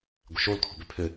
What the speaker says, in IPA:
ɡʷ ɪ ʃ o l kʰ ɔ̤ b ʏ pʰ ʏ

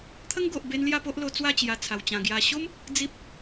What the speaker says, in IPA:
t̪ʰ ə˦ ŋ ɡ o˨ ʔ b e˧ n l j a˥˧ p o˦ ʔ l o˧ t͡s w a˥˧ t͡ɕ j a˨˩ t͡sʰ a˨˩ w t͡ɕ ã˨˩ ɡ j a˨˩ ɕ o˦ m | d͡z i˦ p̚

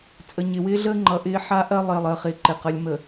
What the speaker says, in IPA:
t͡sʼ ə˨ ɲ ɪ˨ w ɪː˦ ɮ əː˦ ŋ͡ǃ ʌ˨ ʔ ɪː˦ ħ a˦ ʔ ɜ˦ lˠ ɪː˨ lˠ əː˨ χ ɪː˨ ǃ ɪ˨ q ʌ˨ lʲ m ə˨

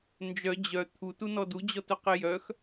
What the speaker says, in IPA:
n d͡ʒ œ d͡ʑ œ t̪ʰ u t u n ɔ d u d͡ʑ ɔ t œ q e j œ x

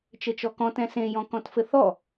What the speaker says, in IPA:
t͡ʃ ɘ t͡ʃ ɔ k ɔ̃ t ɛ̃ s ẽ j ɔ̃ k ɔ̃ t f ɘ θ ɔ

